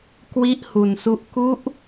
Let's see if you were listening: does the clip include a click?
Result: no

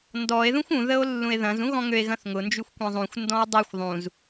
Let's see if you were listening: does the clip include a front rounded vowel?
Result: yes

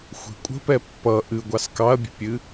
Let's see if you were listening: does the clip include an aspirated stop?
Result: no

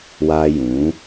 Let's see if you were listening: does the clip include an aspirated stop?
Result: no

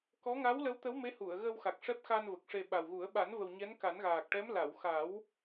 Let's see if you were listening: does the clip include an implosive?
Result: yes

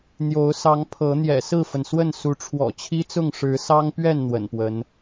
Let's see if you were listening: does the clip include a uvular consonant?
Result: no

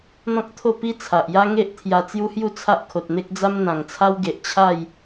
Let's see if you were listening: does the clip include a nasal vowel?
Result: yes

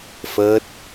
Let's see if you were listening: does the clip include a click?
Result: no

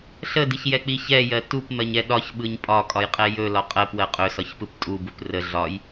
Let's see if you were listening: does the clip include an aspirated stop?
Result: no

